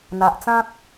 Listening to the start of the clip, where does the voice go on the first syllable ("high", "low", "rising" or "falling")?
low